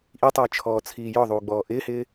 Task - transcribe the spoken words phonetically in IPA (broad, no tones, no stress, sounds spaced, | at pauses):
ʔ i tˤ əː t͡ʃʰ ɔː t͡sʰ iː j ɔ ðˤ uː ɡ͡b ɔː ʔ ɪː h ɪː